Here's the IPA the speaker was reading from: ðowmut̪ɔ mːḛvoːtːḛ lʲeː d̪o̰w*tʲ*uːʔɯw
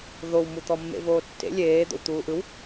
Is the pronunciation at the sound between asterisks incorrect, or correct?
incorrect: t̪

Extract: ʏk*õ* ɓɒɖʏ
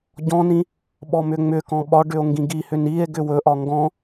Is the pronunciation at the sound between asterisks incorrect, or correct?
incorrect: ɔ̃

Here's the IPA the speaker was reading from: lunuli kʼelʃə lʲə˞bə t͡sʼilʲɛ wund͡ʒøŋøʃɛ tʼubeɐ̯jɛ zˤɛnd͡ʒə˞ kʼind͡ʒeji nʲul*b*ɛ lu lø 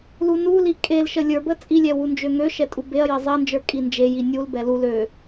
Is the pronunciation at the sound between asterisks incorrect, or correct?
correct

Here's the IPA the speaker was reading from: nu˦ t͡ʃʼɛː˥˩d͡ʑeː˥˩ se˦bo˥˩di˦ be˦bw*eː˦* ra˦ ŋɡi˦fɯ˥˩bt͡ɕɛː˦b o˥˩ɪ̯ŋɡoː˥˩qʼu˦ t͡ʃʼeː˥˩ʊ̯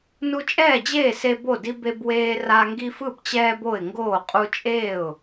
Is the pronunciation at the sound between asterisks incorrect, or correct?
correct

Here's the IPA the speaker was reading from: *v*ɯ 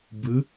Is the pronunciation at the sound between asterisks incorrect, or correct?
incorrect: b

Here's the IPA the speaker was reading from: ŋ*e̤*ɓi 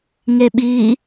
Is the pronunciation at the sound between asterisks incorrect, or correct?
incorrect: e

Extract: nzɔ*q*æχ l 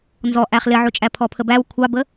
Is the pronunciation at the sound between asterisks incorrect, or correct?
incorrect: ʔ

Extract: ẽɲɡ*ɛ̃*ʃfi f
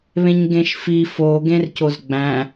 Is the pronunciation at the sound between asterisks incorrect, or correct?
incorrect: ẽ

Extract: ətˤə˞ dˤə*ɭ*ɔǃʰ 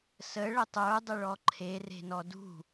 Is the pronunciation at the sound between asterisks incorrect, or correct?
correct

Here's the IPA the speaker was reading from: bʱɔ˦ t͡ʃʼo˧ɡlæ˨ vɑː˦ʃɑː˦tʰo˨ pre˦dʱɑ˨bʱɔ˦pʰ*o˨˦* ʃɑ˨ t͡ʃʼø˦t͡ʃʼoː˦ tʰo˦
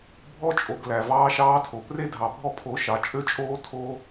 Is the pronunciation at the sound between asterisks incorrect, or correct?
correct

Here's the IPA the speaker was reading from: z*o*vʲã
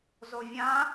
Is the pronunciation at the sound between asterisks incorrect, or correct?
correct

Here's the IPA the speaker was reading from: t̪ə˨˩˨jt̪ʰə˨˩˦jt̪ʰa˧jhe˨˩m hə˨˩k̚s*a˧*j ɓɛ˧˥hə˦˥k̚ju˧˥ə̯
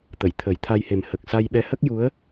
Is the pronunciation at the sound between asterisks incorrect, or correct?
correct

